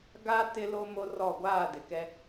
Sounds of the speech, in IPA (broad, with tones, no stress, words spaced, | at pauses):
ɡa˦ tɪ˦lo˦mo˦rɔ˦˨ ɡʷaː˦˨dɪ˨kɛ˦